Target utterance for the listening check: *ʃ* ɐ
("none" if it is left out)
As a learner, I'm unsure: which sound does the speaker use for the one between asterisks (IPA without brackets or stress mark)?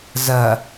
z